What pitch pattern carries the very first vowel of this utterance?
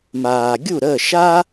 low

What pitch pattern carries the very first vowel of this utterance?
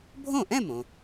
falling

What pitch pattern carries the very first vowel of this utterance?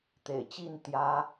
low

